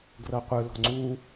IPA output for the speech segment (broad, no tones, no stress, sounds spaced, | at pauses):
ɡ r ɤ qʷ ɯ l ɔ̤ ŋ͡ǀ u